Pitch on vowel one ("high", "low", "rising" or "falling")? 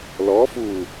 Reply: rising